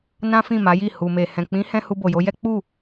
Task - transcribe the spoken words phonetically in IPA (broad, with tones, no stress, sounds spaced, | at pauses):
n ã˦ f ĩ˦˨ m a˨˦ j i˦˨ h u˨ m e˨ h ɛ̃˨ k͡p ĩ˨˦ h ɛ̃˧ h u˧ b o˨ j o˨˦ j ɛ˦ k͡p u˦˨